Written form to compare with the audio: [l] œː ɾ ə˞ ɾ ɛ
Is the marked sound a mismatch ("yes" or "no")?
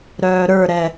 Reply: yes